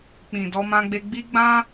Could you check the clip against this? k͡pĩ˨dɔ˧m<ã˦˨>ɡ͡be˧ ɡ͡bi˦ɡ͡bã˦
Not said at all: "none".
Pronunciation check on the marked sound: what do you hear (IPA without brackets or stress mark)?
ã˧